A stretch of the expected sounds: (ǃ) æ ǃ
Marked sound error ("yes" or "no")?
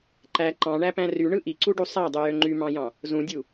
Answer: no